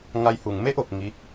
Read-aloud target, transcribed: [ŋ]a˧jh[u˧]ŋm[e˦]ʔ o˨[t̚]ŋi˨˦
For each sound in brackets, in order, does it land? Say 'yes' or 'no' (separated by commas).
yes, no, yes, no